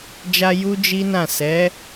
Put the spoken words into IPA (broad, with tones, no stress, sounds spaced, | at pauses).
d͡ʒ a˧ j u˦ d͡ʒ i˦ n ã˦˨ s ɛ˨˦